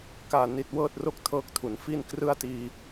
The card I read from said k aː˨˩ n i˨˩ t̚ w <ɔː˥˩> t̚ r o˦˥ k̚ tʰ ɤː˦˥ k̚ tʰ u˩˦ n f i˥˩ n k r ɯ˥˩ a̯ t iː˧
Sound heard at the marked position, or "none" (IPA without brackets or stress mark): ɤː˥˩